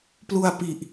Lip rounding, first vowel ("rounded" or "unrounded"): rounded